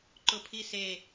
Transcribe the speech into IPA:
ǃ ʊ pʰ i s e

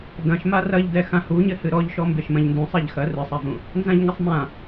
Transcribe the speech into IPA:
d ɐ̃ ʃ m a r ɐ ʎ d ɛ x ã h u ɲ ɘ h ɨ ɾ ɔ ʎ ʃ ɔ m b e ʃ m ɐ̃ ʎ n d ũ sˤ a ʎ x ɐ r ɨ sˤ a v ũ | n z ã ʎ ŋ ɘ sˤ m ã

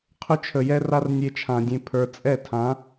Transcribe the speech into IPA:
qʰ ʏ˦ t͡ʃʰ ə˨ j ɛ˦ r a˦ r nʲ e˧ t͡ʃʰ ã˨ dʲ ẽ˧ pʰ ə˞˨ t͡sʼ ɛ˦˨ tʰ ã˨˦

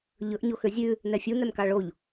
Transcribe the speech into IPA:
ʎ ɵ ʔ ɲ o x ø zʲ ʉ | n ɛ fʲ u n ɛ m k ɑ ɭ o ʎ

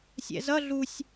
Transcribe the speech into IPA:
sʲ ɛ̰ z ʌ ɮ u sʲ

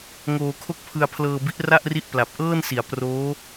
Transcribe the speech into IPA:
ŋ oː˧ kʰ o˥˩ k̚ pʰ ɯ˧ a̯ pʰ l ɤː˧ b i˦˥ ʔ r a˥˩ ʔ r i˦˥ ʔ p l a˨˩ p̚ ʔ ɤː˥˩ n s i˩˦ a̯ p r oː˦˥

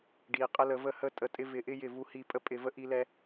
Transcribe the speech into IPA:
ɖ i˨ qʼ ə˦ l ə˧ v ə˦ h ə˦ tʼ ə˧ tʼ ɪ˦ v ɪ˧ ʔ ɪ˦ j ɪ˦˨ v u˧ h i˧ pʼ ə˦ pʼ ɪ˧ v ə˦ ʔ i˧ l ɛ˧

